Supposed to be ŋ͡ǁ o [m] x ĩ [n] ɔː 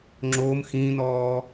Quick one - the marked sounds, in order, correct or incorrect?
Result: correct, correct

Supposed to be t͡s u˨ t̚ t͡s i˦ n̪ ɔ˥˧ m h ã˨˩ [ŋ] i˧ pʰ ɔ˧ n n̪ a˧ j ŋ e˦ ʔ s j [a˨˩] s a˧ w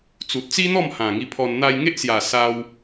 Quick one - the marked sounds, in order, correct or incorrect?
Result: correct, correct

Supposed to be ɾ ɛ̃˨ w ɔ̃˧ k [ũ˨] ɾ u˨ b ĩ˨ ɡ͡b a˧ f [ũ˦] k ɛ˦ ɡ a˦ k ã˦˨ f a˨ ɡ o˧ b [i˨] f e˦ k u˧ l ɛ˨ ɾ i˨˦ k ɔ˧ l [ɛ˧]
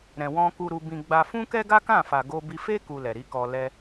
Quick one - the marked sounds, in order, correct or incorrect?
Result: incorrect: u˨, correct, incorrect: i˧, correct

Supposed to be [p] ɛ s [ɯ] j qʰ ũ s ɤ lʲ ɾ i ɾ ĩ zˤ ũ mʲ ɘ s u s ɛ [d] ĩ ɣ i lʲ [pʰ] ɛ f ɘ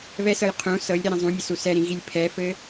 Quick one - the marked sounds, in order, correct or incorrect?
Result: incorrect: β, incorrect: ɤ, incorrect: ɾ, correct

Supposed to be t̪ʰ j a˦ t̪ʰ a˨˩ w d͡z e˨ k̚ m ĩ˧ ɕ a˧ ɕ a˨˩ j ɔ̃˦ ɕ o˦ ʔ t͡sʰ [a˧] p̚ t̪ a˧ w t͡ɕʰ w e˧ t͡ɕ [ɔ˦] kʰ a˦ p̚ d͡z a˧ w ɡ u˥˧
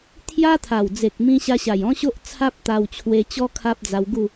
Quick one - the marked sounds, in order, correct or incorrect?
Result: incorrect: a˦, correct

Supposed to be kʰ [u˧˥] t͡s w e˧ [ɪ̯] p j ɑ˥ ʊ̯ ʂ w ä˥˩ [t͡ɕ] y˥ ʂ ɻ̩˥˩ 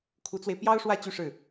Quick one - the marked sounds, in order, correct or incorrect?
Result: correct, correct, correct

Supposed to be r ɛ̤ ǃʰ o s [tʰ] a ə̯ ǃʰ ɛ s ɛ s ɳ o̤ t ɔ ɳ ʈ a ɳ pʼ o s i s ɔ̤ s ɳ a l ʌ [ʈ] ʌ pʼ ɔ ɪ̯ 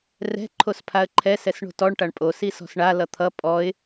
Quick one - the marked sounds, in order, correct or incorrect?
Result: incorrect: pʰ, incorrect: t̪ʰ

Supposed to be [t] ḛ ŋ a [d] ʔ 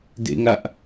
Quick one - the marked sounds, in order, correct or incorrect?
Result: incorrect: d, incorrect: none

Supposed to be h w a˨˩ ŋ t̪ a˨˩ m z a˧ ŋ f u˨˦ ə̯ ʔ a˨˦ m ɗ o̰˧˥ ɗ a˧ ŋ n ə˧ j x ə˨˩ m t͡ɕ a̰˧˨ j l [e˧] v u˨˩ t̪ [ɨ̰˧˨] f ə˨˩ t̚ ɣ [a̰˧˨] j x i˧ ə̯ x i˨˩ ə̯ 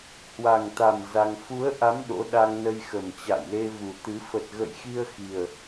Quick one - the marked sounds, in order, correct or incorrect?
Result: correct, incorrect: ɨ˨˦, incorrect: ə̰˧˨

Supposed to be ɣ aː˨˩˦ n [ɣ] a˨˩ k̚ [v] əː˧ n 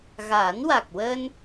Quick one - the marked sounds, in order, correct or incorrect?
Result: incorrect: w, incorrect: w

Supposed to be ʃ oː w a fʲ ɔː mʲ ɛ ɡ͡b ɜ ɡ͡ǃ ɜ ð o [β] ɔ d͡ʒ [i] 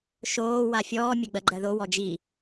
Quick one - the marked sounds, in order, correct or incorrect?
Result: incorrect: w, correct

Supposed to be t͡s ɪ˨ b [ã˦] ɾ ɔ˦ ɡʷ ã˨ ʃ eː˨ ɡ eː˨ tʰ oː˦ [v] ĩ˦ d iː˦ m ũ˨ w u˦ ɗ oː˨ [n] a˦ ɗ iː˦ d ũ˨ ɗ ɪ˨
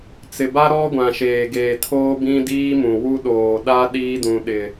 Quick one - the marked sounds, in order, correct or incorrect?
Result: incorrect: a˦, incorrect: b, incorrect: ɗ

